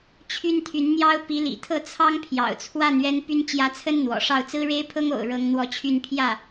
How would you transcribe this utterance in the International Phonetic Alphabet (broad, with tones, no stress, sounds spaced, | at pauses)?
t͡ɕʰ y˥ n t̪ʰ y˧˥ n n̪ j ɑ˥ ʊ̯ p i˧˥ l ḭ˨˩ t̪ʰ ɤ˥˩ t͡sʰ ɑ˥ ŋ pʰ j ɑ̰˨˩ ʊ̯ t͡sʰ w a˥˩ n ɥ ɛ˥ n p y˥ n t͡ɕ j ä˧˥ t͡sʰ ə˥ n n̪ w ɔ̰˨˩ ʂ ɑ˥˩ ʊ̯ t͡s ɹ̩˥ ɻ e˥ ɪ̯ pʰ ɤ˥ ŋ o̰˨˩ ʊ̯ ɻ ɤ˥ ŋ n̪ w ɔ˥˧ t͡ɕʰ y˥˧ n pʰ j ä˥˩